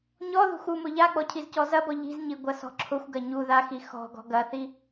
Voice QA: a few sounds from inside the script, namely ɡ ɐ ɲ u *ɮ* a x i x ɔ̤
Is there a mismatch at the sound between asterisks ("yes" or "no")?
yes